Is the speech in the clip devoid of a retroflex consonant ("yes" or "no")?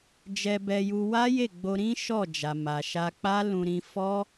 yes